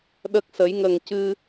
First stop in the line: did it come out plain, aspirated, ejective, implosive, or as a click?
implosive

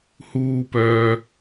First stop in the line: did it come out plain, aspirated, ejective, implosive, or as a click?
plain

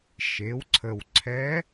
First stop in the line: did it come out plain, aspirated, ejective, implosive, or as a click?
click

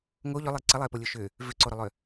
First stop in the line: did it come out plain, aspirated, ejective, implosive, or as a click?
click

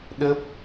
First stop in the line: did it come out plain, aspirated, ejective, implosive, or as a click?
implosive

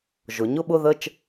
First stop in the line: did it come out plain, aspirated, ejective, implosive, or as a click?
implosive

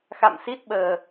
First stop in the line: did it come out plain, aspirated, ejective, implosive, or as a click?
plain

